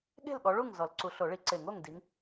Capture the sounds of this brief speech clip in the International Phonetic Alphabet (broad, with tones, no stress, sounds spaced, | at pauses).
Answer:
ɠ e̤˥˨ l ɠ ɔ˨˦ ɭ u˥˨ ŋ z ɔ˨˩˦ l ǀ u˨˦ ɬ o˨˩˦ ɭ i˨˩˦ ǀ e˨˩˦ ŋ o˥˨ ŋ d i˨˦ ŋ